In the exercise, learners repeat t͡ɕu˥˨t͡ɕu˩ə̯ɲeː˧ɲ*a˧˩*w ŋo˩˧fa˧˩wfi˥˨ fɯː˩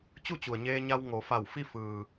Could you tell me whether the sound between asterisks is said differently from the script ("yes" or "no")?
yes